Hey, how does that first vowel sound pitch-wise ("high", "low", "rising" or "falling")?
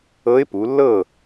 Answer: rising